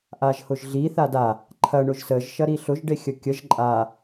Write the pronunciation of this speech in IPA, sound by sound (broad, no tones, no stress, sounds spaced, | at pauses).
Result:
ʔ a ʒ h ʊ ʒ ɮ i θ a d a | ǃʰ ɐ ɳ ʊ ʒ s ə ʒ ʃ ɐ ɾ i ɬ ʊ ʒ ɖ e xʲ ə kʲ ə ʒ ǃʼ a